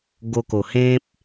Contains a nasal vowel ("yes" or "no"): yes